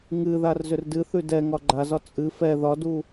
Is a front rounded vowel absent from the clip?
no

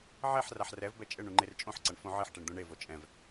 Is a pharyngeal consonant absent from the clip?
no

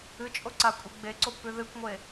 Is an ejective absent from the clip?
no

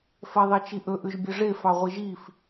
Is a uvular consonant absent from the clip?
no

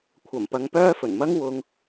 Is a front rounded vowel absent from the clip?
no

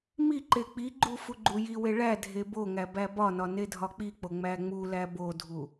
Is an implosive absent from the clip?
yes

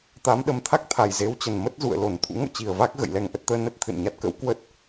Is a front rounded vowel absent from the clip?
yes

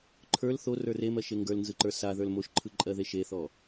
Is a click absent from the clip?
no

